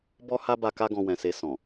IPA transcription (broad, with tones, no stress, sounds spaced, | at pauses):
b ɔ˦ h a˦ b a˧ k a˦ ɡ ɔ̃˧ w ɛ̃˨ s e˧ s ɔ̃˨